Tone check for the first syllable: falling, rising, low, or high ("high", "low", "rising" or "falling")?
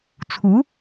rising